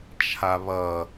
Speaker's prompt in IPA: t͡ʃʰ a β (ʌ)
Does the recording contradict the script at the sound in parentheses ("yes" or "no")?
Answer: no